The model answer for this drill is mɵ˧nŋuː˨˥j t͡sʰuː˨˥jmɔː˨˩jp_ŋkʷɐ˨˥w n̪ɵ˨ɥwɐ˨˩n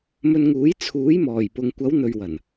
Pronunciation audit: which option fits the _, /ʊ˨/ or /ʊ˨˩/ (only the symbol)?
ʊ˨